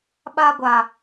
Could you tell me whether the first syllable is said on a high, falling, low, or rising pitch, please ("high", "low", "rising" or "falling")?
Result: high